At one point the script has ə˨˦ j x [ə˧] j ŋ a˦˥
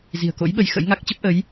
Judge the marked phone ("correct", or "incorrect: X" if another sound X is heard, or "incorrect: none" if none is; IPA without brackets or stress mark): incorrect: ə̰˧˥